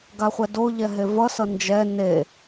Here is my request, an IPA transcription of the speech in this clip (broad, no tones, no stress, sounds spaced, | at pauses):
ɡ a χʷ ɛ d o ʎ ɛ ɦ e v ʌ s ʌ n d͡ʒ ɛ n e